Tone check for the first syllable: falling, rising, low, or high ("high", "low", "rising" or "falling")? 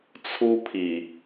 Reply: high